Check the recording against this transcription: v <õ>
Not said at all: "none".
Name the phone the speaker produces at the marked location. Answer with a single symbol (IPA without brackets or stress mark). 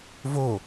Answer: o